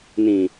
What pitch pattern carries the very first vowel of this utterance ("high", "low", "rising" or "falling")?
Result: low